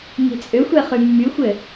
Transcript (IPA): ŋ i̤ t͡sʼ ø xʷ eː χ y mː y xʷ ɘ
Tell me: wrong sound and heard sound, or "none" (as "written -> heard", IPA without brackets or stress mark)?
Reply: eː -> e